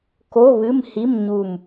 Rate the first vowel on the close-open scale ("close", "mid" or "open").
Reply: mid